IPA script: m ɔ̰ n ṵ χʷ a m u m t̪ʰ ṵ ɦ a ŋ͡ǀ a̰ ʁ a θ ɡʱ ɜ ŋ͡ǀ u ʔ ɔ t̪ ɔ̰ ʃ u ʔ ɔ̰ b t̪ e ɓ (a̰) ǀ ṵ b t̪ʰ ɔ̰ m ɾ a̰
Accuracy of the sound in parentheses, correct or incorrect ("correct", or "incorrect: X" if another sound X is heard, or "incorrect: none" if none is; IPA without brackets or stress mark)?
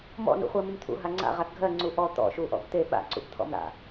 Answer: correct